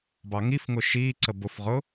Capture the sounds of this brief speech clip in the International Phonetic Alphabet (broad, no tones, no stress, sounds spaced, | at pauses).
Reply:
b ɑ ŋ i f ŋ ʊ ʃ iː ǀ ə b ʊ f ʁ ʊ